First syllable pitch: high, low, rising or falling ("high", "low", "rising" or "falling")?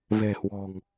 low